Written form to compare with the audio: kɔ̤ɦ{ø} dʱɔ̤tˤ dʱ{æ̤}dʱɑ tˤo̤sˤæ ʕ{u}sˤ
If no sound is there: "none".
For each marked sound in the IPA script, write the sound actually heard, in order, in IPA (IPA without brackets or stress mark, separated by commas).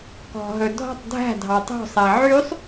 ɵ, æ̤, y